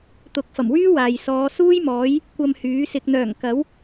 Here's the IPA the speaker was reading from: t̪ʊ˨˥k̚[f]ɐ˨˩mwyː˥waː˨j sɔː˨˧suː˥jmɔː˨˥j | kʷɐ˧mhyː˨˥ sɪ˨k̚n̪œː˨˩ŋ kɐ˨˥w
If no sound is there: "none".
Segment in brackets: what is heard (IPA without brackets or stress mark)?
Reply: f